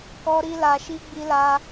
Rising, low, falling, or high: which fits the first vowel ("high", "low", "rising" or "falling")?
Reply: high